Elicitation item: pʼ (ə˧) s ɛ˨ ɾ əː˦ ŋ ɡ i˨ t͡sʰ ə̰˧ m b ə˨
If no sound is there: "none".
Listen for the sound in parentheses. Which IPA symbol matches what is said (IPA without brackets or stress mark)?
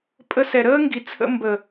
ə˧